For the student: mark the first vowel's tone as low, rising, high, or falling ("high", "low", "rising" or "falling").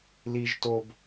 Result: high